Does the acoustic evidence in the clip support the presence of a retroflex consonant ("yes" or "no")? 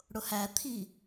yes